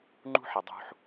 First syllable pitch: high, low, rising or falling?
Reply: high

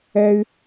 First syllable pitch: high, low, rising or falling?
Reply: high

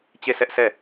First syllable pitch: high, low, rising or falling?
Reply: falling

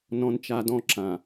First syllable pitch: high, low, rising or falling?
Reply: high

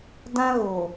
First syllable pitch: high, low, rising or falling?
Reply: high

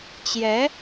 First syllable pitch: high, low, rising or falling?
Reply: rising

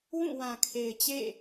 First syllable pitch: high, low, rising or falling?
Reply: falling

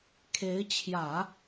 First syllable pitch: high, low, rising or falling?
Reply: rising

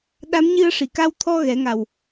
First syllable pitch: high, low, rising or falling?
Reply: rising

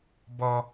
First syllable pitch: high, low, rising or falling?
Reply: high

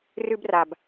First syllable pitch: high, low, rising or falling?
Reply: high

